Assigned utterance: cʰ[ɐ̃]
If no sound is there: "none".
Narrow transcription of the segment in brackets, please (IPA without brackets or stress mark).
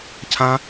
ã